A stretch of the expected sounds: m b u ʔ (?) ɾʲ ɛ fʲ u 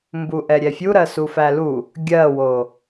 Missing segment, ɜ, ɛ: ɛ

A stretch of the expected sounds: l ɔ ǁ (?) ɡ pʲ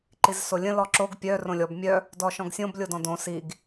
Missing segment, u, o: o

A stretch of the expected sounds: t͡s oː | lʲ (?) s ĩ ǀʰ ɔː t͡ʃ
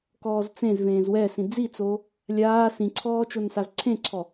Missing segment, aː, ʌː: aː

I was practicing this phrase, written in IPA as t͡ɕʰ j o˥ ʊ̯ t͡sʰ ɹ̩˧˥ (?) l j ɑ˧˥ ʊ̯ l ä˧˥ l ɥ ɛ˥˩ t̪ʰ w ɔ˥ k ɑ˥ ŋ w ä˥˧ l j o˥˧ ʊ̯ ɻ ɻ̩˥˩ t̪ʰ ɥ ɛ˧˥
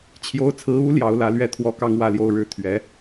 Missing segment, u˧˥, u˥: u˧˥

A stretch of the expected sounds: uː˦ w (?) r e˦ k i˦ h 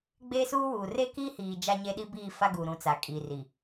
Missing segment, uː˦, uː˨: uː˨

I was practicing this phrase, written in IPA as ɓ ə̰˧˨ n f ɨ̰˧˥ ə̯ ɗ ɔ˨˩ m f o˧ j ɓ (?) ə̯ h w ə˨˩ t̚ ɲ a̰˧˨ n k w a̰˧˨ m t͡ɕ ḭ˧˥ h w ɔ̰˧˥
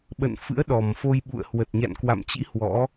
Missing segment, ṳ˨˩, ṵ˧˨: ṵ˧˨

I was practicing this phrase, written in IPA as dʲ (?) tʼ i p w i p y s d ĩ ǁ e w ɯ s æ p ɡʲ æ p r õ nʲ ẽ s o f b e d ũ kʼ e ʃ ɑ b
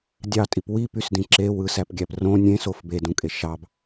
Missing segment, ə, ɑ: ɑ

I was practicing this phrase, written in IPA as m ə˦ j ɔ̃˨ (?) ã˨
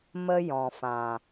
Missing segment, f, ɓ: f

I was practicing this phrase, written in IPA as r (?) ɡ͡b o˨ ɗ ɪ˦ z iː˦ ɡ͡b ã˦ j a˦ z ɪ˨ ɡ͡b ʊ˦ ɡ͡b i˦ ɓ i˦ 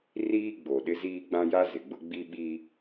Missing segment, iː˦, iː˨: iː˦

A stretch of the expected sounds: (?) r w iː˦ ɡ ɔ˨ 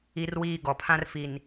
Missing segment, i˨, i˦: i˦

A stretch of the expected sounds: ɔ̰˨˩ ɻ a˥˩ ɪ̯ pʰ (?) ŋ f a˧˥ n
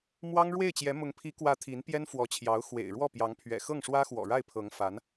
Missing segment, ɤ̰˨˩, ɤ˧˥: ɤ˧˥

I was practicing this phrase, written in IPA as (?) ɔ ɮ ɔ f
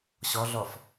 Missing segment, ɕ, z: ɕ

